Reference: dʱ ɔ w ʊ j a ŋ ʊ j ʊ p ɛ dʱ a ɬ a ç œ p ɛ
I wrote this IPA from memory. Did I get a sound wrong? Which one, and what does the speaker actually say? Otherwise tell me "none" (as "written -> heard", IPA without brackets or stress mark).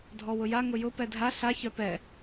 none